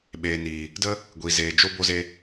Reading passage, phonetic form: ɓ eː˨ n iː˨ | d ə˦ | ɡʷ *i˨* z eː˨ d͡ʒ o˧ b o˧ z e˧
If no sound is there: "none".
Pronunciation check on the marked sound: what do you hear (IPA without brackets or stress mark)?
i˨